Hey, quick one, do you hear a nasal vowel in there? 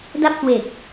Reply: no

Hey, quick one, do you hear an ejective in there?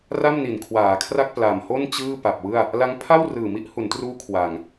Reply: no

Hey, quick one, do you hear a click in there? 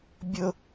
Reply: no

